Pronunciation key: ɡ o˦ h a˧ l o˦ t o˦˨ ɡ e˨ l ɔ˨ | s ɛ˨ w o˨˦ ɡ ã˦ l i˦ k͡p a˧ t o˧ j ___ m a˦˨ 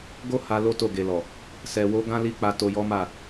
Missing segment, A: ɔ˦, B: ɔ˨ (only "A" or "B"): A